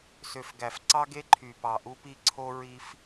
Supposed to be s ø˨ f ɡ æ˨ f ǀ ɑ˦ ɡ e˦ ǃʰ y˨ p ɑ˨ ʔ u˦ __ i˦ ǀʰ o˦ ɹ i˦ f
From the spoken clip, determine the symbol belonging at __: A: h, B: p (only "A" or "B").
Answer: B